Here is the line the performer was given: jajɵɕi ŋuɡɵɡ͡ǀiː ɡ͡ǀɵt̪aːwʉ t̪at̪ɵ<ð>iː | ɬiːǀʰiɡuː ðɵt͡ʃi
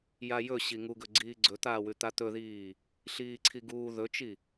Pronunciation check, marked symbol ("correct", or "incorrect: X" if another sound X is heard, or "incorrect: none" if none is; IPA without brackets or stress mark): correct